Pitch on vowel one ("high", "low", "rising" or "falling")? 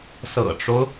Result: low